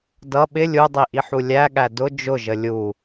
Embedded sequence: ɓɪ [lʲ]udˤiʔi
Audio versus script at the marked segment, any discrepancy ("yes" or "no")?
no